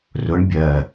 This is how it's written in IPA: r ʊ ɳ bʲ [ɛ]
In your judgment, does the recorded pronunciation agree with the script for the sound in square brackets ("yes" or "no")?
no